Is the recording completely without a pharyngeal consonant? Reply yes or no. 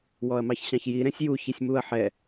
no